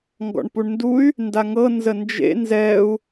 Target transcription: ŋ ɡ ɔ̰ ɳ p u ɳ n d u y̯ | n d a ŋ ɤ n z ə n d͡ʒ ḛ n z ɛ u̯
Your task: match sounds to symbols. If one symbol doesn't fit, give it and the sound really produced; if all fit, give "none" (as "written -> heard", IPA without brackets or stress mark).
none